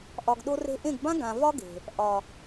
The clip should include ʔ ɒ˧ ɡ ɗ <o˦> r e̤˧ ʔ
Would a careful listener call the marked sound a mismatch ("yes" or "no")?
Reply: no